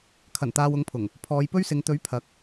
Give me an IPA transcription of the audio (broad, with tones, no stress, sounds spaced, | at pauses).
kʰ ɐ˨˩ n t̪ aː˨ w ʊ˨˥ ŋ pʰ ʊ˨˩ ŋ | pʰ ɔː˨˧ j p ɵ˥ ɥ s ɪ˨˧ ŋ t̪ ɵ˨˥ ɥ pʰ ɐ˨˥ k̚